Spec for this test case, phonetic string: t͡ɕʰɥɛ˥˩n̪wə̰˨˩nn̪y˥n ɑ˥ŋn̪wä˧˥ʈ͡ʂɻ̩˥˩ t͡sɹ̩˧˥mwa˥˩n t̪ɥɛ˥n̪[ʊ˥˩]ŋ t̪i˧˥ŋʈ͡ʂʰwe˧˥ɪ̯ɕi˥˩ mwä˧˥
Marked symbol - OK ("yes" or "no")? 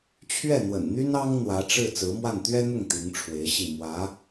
yes